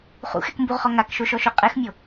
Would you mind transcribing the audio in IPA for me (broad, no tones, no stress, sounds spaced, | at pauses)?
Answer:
χ ṵ x ɛ k m b u ʁ χ ɔ ŋ a k ʃ o ʃ ɔ ʃ o qʼ ɛ x mʲ o